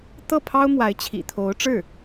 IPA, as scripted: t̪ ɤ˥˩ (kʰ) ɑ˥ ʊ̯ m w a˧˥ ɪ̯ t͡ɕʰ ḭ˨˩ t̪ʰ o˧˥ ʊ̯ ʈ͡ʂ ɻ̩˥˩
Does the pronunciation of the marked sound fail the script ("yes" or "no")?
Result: yes